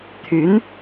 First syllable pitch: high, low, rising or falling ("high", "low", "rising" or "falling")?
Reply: rising